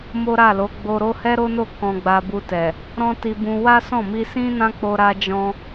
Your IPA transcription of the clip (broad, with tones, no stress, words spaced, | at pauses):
mo˦ɾa˦˨lo˨˦ ɡ͡bo˧ɾo˦ hɛ˦ɾo˦no˦˨ kɔ̃˧ɡ͡ba˧bu˧tɛ˨ | ɾɔ̃˦ti˧bũ˧ wa˦sɔ̃˦˨ mi˧sĩ˦nã˦ k͡po˧ɾa˧d͡ʒɔ̃˧